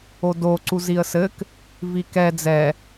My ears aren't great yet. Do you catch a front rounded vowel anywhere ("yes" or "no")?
no